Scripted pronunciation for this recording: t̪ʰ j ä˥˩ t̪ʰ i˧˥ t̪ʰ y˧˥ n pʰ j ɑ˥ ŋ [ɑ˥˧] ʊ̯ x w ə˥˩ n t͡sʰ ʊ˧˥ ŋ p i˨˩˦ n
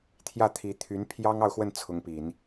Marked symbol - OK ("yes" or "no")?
yes